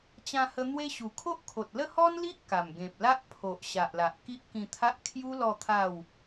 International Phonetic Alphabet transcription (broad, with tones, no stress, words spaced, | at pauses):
t͡ɕã˧hə˧ n̪we˦ɕu˨˩ kʰo˦ʔkʰo˨t̚lə˥˧ hɔ˦nli˦ʔ ka˨˩mɡẽ˨p̚ la˦ʔpʰo˨ʔ ɕa˨ʔla˨ʔ ki˦ʔkĩ˧t̪ʰa˦ʔ kʰju˦ lɔ˥˧t̪ʰa˥˧w